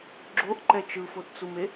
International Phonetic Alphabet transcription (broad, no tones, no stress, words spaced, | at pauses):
ɡ͡ǁoʔǃɛ t͡ʃɯfott͡sume